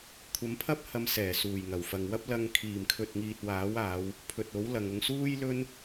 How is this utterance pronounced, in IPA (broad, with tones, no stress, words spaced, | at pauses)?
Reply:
kʷʰɐ˨˧mpʰɐ˥p̚hɐ˨˧m sɛː˨˩suː˨˩jŋɐ˨˩wfɐ˨ŋ wɐ˥p̚lɐ˧ŋ kʰiː˨˩mkʰɵ˨t̚ŋiː˨t̚ waː˨˥waː˨˧w | pʰɵ˨t̚o˨˥wlɐ˨ŋʊ˧ŋ suː˥jlɵ˥n